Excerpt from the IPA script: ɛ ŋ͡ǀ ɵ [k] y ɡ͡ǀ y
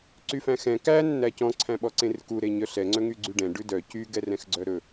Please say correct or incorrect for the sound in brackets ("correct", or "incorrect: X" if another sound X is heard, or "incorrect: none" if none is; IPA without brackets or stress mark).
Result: incorrect: ŋ